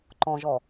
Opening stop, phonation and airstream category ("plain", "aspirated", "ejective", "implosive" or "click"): click